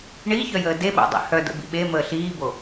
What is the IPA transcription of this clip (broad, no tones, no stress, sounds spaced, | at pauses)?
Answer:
ɳ iː ç œ j əː d e ɓ o̰ dˤ ḭ h œ d ə̰ b ḭ ɓ e m əː ɬ iː b o